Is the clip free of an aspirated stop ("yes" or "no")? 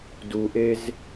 yes